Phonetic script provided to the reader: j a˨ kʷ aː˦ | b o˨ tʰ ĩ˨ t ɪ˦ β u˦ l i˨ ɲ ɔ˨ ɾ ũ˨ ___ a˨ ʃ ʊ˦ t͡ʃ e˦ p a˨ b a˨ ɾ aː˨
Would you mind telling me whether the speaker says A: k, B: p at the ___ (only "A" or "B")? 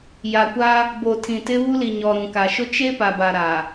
A